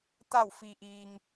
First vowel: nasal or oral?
oral